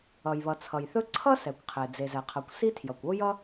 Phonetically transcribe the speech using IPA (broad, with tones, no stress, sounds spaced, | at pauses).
ʌ˩ j β ʌ˩ t͡sʰ ʌ˩ j θ ɵ˥ ǀʰ ʌ˥ s ɛ˩ kʷ qʰ e˩ d͡z e˩ z ɛ˩ qʰ ʌ˩ kʷ s i˥ tʰ j ʌ˩ kʷ o˥ j ʌ˥